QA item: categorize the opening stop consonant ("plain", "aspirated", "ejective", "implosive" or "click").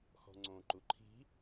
click